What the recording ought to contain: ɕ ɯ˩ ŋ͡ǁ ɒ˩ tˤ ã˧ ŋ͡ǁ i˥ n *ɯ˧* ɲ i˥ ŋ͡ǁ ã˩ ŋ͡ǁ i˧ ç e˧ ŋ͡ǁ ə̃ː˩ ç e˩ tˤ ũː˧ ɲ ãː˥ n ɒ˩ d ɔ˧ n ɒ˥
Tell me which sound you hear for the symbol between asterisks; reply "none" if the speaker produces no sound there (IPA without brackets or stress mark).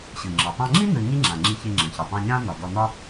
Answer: ɯ˧